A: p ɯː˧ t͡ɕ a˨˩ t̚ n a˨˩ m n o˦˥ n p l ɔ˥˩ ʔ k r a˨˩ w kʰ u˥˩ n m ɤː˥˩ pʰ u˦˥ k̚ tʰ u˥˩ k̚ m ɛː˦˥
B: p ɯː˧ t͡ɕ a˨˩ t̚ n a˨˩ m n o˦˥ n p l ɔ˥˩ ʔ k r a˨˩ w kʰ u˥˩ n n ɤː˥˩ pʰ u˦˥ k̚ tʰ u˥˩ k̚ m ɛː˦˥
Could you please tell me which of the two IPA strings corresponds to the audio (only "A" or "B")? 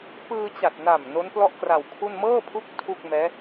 A